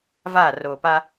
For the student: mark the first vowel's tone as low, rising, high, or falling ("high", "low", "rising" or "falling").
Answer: falling